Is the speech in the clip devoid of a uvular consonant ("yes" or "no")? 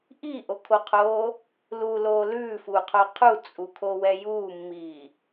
no